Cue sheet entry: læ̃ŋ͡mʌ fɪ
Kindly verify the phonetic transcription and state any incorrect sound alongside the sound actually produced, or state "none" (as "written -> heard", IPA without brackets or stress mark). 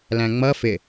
none